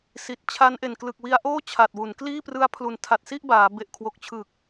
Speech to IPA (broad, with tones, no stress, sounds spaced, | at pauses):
s i˨˩ t̚ t͡ɕʰ a˦˥ n ʔ e˨˩ n k l ɯ˨˩ k̚ w i˧ a̯ ʔ oː˥˩ t͡ɕʰ a˨˩ t̚ w u˩˦ n k l iː˥˩ p r ɯ˦˥ a̯ pʰ l u˨˩ n tʰ a˨˩ t̚ s i˥˩ ʔ b aː˩˦ b e˨˩ ʔ kʰ w o˨˩ k̚ t͡ɕʰ ɯ˨˩ k̚